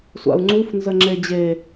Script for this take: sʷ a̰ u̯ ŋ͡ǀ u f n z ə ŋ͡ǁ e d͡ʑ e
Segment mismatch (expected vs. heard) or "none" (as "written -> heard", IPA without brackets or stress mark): none